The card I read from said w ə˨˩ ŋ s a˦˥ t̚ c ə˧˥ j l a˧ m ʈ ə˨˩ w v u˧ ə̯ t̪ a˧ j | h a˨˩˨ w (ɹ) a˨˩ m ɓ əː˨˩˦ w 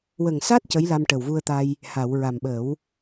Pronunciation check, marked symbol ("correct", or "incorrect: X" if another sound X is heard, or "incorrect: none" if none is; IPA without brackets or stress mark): correct